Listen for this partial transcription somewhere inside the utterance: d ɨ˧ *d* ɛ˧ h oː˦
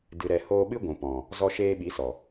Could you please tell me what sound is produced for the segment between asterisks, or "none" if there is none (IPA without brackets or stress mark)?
ɾ